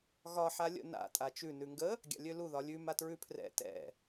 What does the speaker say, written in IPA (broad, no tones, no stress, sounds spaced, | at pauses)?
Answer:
ɣ ɒ ħ a lʲ ə̰ n a̰ tʼ a t͡ʃ ʉ n ʉ ŋ ɡ ə | ɡʲ a̰ lʲ ø l u ð ɒ lʲ ʉ m a t ɹ ʉ pʰ r ɛ̰ t ɛ̰